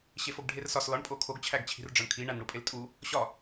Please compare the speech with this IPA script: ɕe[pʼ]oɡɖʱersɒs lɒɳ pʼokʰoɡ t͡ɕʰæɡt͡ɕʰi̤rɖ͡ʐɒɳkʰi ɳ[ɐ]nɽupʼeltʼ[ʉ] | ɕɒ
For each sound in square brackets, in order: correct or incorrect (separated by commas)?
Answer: incorrect, incorrect, incorrect